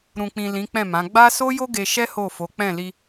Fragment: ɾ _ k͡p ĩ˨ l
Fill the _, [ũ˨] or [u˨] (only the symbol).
ũ˨